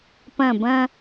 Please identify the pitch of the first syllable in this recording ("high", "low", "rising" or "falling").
falling